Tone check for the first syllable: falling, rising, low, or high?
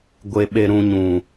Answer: high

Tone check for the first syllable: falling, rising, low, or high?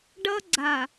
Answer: high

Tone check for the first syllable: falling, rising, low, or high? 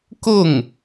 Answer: falling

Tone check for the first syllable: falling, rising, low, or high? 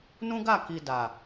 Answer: high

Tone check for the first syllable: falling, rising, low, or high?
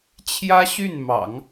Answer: high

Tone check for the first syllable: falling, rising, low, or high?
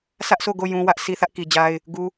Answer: high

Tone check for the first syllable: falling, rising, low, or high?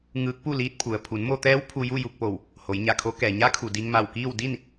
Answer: rising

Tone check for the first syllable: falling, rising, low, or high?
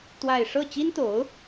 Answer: falling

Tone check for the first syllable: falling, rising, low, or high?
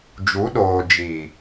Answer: rising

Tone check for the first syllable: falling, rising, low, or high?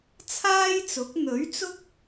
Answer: high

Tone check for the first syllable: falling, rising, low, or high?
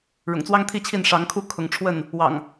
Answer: low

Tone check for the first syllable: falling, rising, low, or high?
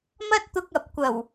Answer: high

